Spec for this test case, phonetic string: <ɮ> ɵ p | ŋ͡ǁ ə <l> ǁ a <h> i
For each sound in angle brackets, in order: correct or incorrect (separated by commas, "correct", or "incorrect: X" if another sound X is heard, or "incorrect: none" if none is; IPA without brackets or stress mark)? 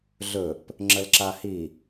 correct, correct, correct